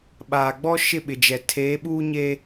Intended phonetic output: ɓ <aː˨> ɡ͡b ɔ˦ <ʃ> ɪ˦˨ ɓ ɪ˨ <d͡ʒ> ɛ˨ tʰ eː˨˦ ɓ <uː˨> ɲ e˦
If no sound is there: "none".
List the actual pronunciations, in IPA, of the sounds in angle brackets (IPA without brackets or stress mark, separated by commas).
aː˨, ʃ, d͡ʒ, uː˦